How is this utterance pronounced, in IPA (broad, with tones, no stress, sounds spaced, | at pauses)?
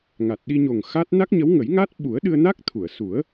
ŋ a˨˩ t̚ ɗ i˧ ɲ o˨˩ ŋ x a˦˥ t̚ n a˦˥ k̚ ɲ ə˧˥ w ŋ ə˨˩˦ j ŋ a˦˥ t̚ ɓ u˨˩˦ ə̯ ɗ ɨ˧ ə̯ n a˦˥ k̚ t̪ʰ u˨˩˨ ə̯ s u˨˩˦ ə̯